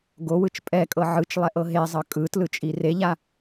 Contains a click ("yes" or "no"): no